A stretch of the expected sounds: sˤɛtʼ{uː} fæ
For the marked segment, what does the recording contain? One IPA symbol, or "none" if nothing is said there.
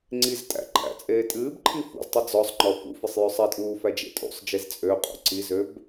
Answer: uː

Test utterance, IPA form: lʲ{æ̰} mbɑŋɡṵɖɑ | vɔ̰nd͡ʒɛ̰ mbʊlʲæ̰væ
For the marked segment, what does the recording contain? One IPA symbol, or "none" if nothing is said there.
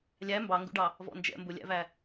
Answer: æ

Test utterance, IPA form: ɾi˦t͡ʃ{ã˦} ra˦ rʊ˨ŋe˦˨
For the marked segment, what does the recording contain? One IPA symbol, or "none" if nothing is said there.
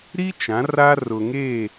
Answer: ã˨˦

